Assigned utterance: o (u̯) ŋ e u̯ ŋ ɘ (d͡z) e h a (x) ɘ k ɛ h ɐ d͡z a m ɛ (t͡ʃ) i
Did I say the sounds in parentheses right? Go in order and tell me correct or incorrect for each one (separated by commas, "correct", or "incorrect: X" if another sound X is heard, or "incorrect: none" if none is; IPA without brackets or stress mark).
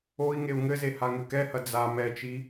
incorrect: i̯, incorrect: z, incorrect: ŋ, correct